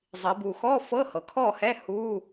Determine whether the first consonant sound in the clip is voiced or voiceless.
voiced